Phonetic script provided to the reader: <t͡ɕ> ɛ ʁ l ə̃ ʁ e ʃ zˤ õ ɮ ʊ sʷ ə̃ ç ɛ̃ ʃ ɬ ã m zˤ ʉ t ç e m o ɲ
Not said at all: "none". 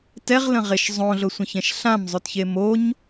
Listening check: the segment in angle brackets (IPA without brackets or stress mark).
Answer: t